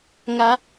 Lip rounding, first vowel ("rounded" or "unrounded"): unrounded